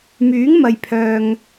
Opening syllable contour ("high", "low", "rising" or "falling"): rising